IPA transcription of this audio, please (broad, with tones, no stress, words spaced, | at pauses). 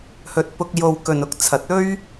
hɵ˧t̚pʊ˧k̚jo˧w kɵ˨nʊ˥k̚t͡sʰɐ˨˥t̚ ɵ˥ɥ